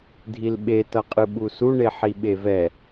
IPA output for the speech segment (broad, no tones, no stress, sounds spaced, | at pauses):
dʱ i l ɓ e t ʌ qʼ ɯ ɓ u s u ɳ e ħ i ɓ e v ɛ